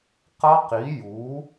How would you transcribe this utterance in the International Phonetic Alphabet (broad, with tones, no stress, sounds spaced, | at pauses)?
q ʌ˦˥ q i˨˥ j u˨˥